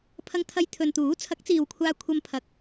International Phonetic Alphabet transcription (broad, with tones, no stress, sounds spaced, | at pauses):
pʰ ɐ˧ ŋ t̪ʰ ɐ˧ j t̪ʰ ɵ˨ n t̪ uː˨˥ t͡sʰ ɐ˨˥ k̚ t͡s iː˨ w kʷʰ aː˧ kʷʰ ɐ˧ m pʰ ɐ˨ k̚